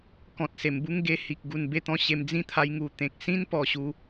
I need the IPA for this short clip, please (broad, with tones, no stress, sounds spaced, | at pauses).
k ɔ̃˨ t̚ s e˨˩ m b u˦ ŋ ɡ e˧ h i˨ k̚ ɡ u˨˩ n b e˥˧ t̪ ɔ̃˥˧ ɕ e˧ m d͡z ĩ˦ t̪ʰ a˧ j ŋ u˨˩ t̪ ẽ˨ k̚ s ĩ˦ n p ɔ˨˩ ɕ u˧